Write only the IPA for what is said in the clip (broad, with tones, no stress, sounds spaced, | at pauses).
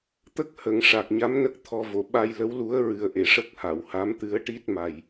t̪ ə˦˥ k̚ h ə˨˩˨ ŋ ʂ a˨˩ k̚ ɲ a˧˥ m n ə˦˥ k̚ t̪ʰ ɔ˧ v o˨˩˨ ɓ a˧ j l ə˧˥ w l u˧˥ ə̯ ɹ ɨ˨˩ ə̯ ʔ e˨˩˨ ʂ ə˦˥ k̚ h a˨˩˨ w h a˧˥ m t̪ ɨ˧˥ ə̯ ʈ i˦˥ t̚ m a˨˩ j